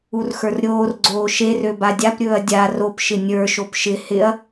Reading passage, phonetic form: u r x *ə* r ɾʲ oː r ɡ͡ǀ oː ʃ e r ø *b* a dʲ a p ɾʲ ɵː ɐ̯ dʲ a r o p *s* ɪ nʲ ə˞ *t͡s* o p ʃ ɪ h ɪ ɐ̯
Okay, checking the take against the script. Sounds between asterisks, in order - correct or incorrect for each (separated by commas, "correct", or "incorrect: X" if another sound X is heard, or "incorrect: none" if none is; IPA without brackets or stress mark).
incorrect: ə˞, correct, incorrect: ʃ, incorrect: ʃ